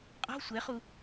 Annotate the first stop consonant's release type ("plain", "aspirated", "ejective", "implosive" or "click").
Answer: ejective